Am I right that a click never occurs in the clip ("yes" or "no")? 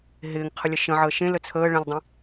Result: yes